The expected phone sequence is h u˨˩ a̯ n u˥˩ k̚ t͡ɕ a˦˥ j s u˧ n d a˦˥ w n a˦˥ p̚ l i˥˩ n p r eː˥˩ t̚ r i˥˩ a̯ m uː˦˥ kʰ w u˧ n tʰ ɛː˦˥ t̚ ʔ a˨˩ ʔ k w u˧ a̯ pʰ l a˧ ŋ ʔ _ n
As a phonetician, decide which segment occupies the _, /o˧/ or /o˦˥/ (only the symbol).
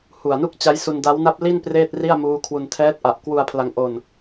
o˧